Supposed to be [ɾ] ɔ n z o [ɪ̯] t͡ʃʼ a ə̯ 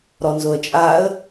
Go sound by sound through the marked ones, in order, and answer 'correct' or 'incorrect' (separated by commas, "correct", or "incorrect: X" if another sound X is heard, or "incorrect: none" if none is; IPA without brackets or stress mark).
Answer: correct, incorrect: ə̯